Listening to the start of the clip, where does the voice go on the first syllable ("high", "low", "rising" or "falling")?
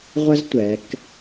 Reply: high